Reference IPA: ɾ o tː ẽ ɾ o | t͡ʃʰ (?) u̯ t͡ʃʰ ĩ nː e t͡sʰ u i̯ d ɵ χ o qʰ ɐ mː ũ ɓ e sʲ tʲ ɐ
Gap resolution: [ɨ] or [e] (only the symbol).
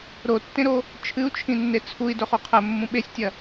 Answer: ɨ